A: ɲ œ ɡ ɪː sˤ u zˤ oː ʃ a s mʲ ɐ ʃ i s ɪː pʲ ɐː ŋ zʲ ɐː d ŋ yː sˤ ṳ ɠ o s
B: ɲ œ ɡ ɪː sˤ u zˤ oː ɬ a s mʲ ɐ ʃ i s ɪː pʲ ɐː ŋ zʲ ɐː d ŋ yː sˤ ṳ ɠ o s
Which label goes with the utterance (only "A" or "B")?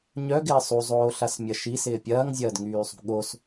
B